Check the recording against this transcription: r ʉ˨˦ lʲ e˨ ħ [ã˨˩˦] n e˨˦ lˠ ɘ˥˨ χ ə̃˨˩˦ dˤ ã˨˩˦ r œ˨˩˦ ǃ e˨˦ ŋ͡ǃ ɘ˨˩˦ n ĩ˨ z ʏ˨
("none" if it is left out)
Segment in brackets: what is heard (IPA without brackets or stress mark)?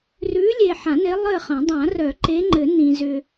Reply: ã˨˩˦